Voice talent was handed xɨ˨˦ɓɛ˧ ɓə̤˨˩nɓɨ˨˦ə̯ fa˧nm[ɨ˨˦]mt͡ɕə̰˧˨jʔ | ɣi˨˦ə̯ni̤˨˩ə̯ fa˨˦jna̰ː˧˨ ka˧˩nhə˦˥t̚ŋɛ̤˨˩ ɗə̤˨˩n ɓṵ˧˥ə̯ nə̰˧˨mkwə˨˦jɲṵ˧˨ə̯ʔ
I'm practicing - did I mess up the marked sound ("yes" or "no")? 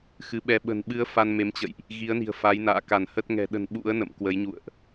yes